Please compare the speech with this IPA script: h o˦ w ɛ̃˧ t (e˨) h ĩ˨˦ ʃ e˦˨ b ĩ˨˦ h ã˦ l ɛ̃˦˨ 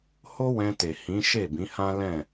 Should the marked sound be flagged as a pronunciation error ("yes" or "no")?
no